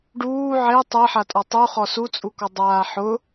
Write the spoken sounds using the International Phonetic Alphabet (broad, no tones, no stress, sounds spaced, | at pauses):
ɖ uː ʕ e tˤ ɛ ħ a tʼ ɔ tˤ u χ ɔ s u t͡sʼ u k ɔ dˤ aː ħ ʊ